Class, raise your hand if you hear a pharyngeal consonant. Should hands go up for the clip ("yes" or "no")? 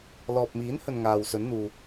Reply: no